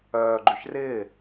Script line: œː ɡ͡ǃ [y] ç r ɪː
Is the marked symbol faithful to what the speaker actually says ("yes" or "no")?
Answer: yes